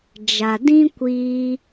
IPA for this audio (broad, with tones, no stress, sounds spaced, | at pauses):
d͡ʒ a˨ d ĩ˦ kʷ iː˧